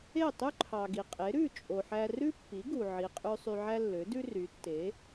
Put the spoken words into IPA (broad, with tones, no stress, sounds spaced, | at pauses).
e˥˩ tˤ y˥ ǃʰ ɑ˩ ɡ i˩ qʼ e˩˥ ɾ ʉ˥˩ t͡ʃʼ o˩ ħ æ˧ r ʉ˥ pː i˩˥ ɡ u˩ ʕ i˩ qʼ ʉ˧ sˤ y˧ ʕ æ˥ lː ø˩˥ d ʉ˥ r y˩˥ tː e˩˥